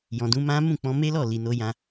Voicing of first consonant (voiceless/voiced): voiced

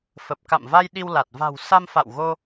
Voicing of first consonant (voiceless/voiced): voiceless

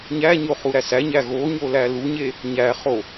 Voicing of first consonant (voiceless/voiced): voiced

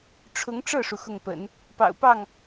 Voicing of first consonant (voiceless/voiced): voiceless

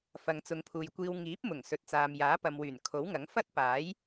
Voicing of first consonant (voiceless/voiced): voiceless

